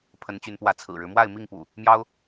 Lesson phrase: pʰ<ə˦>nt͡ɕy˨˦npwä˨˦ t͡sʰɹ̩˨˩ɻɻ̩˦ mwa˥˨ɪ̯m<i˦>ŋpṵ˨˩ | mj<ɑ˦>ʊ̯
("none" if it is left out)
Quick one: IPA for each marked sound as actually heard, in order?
ə˨˦, i˥˨, ɑ˦

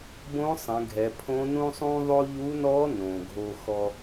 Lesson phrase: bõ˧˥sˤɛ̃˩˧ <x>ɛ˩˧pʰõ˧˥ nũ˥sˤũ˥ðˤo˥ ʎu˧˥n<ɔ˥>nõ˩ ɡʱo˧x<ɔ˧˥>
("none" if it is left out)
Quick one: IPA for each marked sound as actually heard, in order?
ɡʱ, ɔ˧˥, ɔ˧

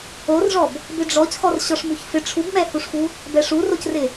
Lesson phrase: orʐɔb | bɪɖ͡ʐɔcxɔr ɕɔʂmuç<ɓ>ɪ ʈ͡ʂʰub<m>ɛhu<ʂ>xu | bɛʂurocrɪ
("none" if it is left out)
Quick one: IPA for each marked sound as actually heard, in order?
f, m, ʂ

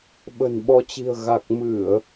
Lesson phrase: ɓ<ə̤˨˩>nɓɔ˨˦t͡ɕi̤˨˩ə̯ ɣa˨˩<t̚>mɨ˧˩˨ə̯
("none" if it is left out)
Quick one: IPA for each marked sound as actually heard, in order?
ə̤˨˩, k̚

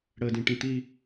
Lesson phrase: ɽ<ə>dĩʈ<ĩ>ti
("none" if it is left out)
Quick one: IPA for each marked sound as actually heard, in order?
ə, ĩ

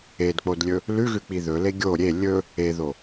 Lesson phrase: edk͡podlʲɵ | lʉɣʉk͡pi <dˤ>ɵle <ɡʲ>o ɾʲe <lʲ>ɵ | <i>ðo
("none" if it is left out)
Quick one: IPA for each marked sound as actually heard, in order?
ð, ɡʲ, lʲ, e

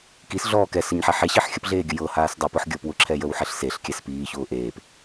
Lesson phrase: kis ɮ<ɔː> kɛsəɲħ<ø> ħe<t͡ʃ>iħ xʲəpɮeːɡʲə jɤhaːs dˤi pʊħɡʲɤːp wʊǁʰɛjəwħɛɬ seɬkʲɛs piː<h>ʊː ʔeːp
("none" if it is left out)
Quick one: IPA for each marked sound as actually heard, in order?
ɔː, ɛ, ɕ, ç

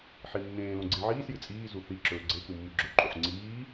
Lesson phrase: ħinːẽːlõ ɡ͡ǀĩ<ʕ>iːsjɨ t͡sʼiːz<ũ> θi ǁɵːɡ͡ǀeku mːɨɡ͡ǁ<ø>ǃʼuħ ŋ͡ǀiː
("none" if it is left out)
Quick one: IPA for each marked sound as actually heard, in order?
ʕ, u, ɵ

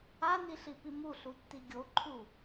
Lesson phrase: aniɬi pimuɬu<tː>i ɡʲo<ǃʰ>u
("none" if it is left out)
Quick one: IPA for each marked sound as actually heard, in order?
tː, ǃʰ

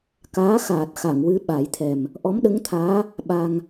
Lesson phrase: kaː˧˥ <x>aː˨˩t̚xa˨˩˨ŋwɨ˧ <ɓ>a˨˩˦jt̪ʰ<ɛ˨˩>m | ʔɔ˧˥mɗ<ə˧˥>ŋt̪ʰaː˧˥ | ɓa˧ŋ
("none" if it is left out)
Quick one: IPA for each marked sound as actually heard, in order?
x, ɓ, ɛ˨˩, ə˧˥

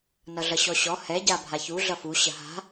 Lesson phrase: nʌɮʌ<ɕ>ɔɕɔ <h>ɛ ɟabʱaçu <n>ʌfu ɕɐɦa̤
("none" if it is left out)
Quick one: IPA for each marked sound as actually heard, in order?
ɕ, h, ɮ

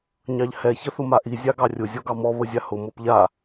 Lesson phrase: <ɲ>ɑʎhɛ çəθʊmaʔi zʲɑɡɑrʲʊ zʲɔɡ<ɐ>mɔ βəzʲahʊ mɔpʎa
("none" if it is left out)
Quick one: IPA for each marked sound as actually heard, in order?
ɲ, ɑ

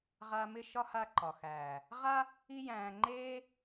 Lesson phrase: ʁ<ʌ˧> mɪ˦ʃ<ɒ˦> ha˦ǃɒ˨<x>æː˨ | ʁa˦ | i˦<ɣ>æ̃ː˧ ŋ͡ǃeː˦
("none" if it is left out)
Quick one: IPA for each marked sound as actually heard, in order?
a˧, ɒ˦, x, j

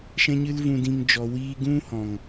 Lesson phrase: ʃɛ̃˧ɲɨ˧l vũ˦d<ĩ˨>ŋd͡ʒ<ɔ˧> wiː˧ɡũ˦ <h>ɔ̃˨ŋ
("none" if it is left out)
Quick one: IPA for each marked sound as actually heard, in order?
ĩ˦, ɔ˧, h

